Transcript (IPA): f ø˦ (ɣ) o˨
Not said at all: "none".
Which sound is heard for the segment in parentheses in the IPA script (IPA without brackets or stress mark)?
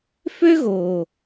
ɣ